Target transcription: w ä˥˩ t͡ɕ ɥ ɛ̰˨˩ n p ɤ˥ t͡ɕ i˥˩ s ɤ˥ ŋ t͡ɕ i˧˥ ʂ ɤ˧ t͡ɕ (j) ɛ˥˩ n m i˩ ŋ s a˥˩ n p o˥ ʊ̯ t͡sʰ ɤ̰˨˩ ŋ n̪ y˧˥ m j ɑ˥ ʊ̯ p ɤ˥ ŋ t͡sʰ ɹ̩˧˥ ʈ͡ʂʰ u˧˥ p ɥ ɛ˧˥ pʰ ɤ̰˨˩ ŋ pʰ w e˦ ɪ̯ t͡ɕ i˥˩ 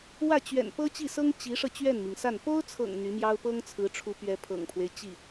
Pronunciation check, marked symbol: incorrect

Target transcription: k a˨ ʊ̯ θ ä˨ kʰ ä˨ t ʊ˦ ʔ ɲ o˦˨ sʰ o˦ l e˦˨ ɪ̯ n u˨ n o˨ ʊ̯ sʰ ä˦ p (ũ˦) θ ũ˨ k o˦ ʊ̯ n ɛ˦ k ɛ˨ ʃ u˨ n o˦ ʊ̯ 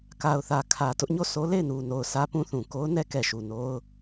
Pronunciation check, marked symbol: correct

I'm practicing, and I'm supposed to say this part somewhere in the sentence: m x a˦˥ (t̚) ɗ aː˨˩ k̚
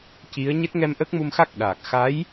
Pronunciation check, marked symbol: incorrect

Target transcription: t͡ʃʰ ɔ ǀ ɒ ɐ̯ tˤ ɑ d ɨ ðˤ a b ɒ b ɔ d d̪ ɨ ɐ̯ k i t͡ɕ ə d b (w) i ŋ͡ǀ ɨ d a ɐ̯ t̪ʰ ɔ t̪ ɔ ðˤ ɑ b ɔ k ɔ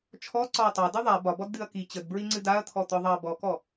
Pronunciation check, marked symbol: incorrect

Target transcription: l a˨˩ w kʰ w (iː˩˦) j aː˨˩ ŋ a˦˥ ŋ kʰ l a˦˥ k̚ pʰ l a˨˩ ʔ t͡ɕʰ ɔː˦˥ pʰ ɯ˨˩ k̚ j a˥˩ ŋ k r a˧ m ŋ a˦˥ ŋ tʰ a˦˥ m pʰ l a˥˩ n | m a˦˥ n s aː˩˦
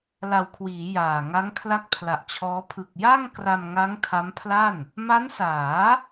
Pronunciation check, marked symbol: correct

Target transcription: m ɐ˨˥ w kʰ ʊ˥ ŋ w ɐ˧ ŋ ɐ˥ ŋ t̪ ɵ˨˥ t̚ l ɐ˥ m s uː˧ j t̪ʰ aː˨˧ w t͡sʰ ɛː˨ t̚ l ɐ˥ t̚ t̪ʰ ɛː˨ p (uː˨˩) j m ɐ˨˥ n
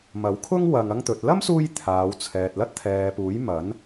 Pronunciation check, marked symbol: incorrect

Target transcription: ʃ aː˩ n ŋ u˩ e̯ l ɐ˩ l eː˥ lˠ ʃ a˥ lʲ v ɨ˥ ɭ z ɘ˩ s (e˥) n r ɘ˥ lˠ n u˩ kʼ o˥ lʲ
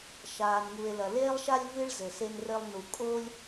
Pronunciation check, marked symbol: correct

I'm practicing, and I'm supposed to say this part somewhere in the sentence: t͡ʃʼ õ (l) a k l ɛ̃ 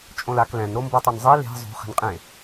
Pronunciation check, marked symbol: correct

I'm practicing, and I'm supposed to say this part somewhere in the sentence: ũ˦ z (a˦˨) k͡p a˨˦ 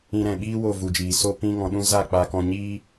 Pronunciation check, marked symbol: correct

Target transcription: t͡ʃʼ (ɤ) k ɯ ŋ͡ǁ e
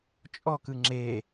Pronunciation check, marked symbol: incorrect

